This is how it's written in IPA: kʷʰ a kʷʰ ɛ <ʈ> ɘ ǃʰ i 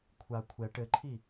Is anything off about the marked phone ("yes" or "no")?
no